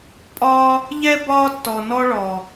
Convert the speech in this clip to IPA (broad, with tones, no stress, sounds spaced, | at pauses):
pʼ ɒː˦ | ʎ ɛ˦ b ɒː˦ tː ɔ˨ n ɔ˦ ɭ ɔ˨